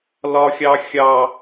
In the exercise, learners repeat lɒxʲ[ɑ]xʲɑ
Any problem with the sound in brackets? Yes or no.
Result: no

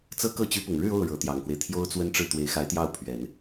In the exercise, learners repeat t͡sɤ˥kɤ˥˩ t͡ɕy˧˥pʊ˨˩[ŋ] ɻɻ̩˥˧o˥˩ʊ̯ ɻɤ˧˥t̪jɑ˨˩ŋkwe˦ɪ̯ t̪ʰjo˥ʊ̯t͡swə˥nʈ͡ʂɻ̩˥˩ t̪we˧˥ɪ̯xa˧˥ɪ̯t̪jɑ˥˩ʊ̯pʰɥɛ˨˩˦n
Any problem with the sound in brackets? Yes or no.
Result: no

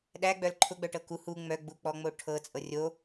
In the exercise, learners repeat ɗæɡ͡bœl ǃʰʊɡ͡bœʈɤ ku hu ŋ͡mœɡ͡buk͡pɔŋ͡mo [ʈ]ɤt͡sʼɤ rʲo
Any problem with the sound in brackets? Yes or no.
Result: yes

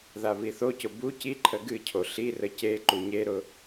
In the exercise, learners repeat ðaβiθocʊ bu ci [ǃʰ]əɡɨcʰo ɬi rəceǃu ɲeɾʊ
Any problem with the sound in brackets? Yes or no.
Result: no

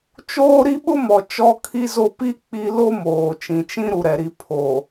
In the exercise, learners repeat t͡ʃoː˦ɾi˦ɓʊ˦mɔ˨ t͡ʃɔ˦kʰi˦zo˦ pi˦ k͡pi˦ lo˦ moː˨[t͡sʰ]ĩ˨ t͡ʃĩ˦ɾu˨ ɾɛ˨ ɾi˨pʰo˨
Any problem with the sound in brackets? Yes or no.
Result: yes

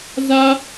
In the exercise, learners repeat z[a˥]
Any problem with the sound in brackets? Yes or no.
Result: no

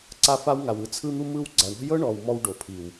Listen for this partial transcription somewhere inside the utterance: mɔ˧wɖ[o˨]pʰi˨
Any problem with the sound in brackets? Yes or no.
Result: no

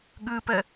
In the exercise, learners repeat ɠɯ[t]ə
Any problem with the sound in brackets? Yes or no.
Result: yes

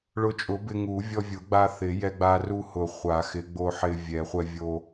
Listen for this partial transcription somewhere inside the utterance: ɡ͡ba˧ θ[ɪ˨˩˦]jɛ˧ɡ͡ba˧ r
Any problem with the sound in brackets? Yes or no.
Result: no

